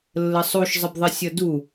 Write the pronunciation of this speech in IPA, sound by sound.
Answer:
lːəsˤuʃ zˤəbðˤɪsʲʌdu

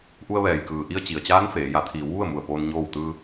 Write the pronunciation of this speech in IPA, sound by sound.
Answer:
ʔu˧ə̯ʋɛː˩jkɯː˩ ʔi˧ə̯t͡ɕi˩ə̯t͡ɕaː˧˥n feː˩˧ ja˩˧t̪ʰiː˩˧w ʋu˥˨ə̯mu˧˩ə̯poː˧n ɲoː˥˨w t̪ɯː˧

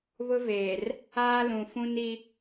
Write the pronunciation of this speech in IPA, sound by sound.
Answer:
βʊ˦veː˨r | aː˦lũ˨fũ˦ni˦

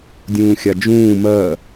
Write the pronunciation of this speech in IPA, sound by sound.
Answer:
dʲũːxʲad͡ʒũː mɜ

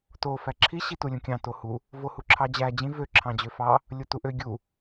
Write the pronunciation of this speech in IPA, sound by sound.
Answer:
to fæǁʰi ɕitulʲũkʲɑ̃ tohu | vohuǁʰɑd͡ʑæ d͡ʑĩ vø ǁʰɑ̃d͡ʑøfɑ | lʲotuʔø ɡʲu

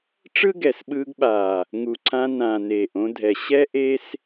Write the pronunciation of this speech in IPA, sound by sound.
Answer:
ʈ͡ʂɯ˦ɡɛ˨sɓɯː˧ɡɓaː˨ | ŋu˨ǀʰã˧nã˨ neː˨ʔõ˧dʱɛ˨ ɕɛ˦ ʔe˦s

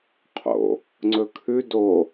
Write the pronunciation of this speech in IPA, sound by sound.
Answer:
qʰo̰ | ŋ͡ǀɵkʰʉ do

